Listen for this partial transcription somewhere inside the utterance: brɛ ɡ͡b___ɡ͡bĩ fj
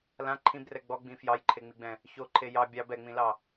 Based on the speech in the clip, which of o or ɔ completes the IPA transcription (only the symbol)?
ɔ